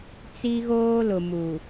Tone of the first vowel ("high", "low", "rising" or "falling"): high